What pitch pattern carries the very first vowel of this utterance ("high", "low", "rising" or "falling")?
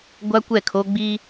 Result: high